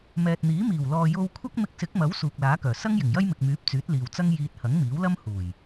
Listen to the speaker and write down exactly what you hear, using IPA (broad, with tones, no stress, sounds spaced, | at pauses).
m ɛː˨ t̚ n̪ iː˨˥ m iː˨˩ w l ɔː˨ j o˧ w kʷʰ ɐ˥ k̚ m ɪ˧ k̚ s ɪ˨˥ k̚ m ɐ˨˥ w s uː˨ k̚ l aː˨˥ k œː˨˩ s ɐ˥ ŋ j ɪ˨˩ ŋ j ɐ˥ j m ɪ˨ k̚ m yː˨˥ p̚ t͡s yː˨˥ t̚ l iː˨ w t͡s ɐ˥ ŋ j iː˧ t̚ h ɐ˨˥ ŋ m iː˨˥ w l ɐ˥ m h uː˨˩ j